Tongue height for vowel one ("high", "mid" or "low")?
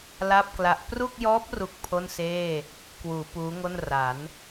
low